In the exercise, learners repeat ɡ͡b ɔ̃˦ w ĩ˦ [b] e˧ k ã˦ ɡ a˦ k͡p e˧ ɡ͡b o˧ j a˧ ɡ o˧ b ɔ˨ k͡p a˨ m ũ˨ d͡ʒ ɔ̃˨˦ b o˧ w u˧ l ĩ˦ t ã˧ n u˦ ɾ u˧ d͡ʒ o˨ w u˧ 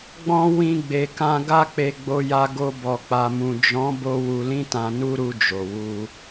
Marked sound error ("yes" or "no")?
yes